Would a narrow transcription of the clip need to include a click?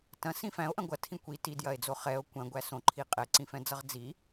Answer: yes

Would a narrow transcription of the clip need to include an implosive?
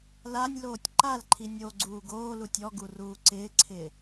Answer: no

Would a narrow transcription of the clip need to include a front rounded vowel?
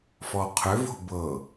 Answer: yes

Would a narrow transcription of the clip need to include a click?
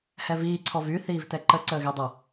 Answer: yes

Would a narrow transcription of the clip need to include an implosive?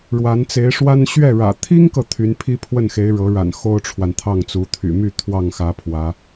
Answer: no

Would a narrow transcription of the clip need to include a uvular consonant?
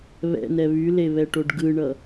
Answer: no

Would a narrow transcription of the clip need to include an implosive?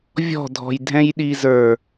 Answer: yes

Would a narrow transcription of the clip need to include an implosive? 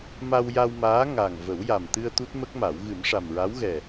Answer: no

